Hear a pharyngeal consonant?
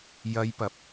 no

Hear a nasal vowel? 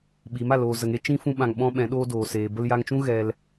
yes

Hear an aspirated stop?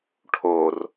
yes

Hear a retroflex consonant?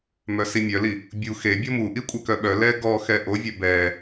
no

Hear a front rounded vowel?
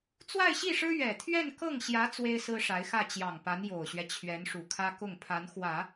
no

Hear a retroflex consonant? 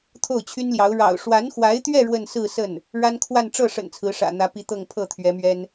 yes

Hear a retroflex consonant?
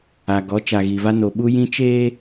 no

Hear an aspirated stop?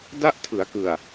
yes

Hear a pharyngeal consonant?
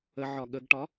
yes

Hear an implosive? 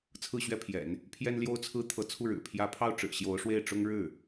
no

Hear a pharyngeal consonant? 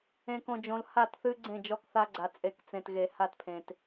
no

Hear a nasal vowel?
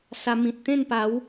yes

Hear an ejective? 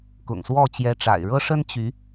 no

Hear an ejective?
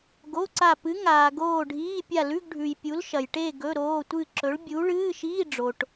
no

